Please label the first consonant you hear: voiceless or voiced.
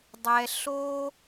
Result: voiced